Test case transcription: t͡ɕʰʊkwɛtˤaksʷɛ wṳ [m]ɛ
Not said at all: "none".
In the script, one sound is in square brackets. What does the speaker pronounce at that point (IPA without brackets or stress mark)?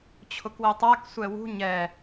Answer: ɲ